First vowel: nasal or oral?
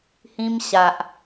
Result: nasal